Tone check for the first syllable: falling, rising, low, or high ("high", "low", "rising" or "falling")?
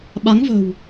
rising